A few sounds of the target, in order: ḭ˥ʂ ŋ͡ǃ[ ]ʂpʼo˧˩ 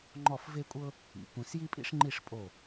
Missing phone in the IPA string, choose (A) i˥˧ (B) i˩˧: A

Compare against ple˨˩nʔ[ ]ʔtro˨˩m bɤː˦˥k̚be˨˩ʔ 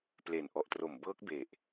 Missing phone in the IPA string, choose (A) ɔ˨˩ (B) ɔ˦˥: A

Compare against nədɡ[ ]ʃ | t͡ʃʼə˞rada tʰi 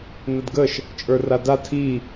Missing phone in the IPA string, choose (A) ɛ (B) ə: B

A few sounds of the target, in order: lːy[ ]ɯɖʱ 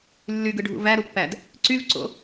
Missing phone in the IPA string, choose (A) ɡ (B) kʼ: A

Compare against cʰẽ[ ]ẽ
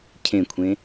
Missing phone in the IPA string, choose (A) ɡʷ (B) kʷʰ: B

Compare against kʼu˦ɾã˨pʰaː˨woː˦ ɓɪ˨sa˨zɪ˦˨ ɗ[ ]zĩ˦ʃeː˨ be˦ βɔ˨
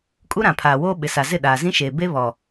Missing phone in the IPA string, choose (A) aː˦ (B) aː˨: B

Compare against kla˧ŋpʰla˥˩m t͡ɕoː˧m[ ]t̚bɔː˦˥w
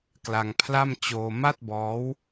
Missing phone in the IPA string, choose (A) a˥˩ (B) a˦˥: A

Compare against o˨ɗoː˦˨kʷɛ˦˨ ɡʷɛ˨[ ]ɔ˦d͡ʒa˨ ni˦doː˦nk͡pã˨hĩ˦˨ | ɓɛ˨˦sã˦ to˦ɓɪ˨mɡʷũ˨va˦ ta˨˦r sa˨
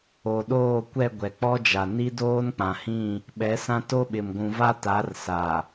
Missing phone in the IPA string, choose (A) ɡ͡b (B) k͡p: B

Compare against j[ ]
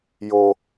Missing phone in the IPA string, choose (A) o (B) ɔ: A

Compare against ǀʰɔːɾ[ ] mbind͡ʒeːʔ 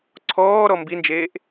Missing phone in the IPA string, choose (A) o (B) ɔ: B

